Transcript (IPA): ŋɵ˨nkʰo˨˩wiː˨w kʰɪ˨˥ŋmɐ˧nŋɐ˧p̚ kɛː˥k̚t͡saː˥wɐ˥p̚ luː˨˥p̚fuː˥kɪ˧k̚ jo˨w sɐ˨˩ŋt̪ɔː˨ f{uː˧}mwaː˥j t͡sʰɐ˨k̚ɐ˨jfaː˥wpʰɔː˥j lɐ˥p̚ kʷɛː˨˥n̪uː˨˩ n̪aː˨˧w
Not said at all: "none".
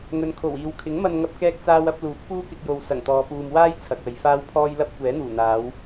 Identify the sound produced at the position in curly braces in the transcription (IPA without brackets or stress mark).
uː˨